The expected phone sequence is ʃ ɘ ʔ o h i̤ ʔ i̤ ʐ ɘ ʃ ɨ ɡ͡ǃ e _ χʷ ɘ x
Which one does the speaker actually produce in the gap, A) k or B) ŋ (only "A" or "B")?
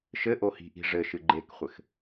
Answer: A